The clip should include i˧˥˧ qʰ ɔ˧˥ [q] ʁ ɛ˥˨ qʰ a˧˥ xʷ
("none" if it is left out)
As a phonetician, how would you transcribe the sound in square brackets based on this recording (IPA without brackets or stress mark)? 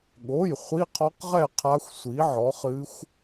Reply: q